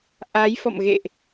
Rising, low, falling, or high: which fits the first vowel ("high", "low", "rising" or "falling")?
rising